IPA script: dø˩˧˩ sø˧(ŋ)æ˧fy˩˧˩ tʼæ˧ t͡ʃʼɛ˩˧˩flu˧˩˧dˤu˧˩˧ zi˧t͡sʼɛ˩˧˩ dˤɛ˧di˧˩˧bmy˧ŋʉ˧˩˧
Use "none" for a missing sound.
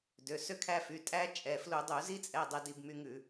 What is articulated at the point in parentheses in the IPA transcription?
kʰ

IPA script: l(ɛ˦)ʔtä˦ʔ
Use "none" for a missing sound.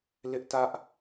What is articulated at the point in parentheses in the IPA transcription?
ɪ˦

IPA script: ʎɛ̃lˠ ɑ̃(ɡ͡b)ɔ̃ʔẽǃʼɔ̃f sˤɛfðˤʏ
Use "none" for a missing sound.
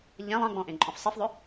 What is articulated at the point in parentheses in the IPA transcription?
ɡ͡b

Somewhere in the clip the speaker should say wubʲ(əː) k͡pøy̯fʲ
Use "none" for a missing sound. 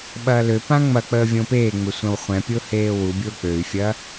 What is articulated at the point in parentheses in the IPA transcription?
ʊː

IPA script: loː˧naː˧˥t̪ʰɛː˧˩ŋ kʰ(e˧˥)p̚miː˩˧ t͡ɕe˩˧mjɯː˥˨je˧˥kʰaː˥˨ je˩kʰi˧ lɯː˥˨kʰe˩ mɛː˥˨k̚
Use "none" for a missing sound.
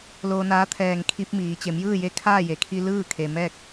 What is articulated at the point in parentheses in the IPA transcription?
i˧˥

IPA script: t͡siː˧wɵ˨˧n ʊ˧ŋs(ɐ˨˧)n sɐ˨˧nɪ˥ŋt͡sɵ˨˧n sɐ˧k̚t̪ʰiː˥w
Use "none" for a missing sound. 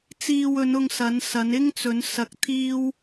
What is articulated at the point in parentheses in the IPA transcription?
ɐ˨˧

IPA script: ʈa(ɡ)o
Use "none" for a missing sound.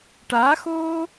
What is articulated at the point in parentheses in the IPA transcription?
x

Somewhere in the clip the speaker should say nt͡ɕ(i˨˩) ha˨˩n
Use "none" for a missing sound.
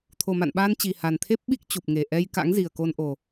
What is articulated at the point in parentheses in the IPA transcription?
i˨˩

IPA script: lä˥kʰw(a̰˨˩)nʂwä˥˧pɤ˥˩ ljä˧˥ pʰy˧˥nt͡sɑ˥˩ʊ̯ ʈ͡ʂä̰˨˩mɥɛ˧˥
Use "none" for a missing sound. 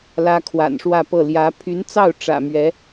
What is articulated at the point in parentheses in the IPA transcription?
a̰˨˩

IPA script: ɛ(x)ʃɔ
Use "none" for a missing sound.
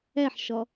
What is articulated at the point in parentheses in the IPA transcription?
ħ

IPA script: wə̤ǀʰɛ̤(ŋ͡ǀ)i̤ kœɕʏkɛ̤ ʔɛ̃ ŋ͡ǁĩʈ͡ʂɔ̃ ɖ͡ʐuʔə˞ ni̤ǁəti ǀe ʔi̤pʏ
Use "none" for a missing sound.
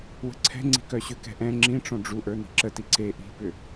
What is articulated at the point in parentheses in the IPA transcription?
ŋ͡ǀ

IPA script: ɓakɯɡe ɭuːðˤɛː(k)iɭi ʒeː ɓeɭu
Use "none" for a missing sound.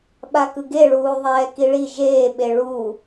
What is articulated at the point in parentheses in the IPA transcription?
k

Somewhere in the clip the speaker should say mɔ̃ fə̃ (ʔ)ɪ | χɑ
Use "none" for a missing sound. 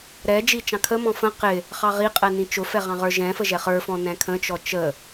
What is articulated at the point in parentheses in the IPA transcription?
q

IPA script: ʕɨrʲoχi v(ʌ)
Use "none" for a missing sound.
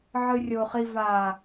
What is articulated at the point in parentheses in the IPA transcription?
a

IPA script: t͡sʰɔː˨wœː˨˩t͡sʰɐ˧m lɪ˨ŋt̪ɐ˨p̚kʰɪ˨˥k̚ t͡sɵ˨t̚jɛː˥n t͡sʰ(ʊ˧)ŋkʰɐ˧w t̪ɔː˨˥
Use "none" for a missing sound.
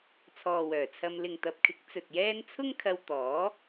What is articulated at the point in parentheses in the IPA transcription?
ʊ˥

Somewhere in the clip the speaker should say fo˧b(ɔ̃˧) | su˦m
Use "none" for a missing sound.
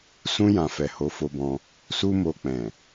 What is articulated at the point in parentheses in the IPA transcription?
ɔ̃˧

